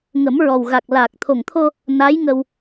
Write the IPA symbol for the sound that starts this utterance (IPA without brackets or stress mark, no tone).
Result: ŋ